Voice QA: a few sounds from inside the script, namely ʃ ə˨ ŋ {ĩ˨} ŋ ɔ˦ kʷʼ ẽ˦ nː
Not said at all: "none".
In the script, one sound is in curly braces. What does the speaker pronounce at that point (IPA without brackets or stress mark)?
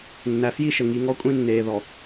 i˨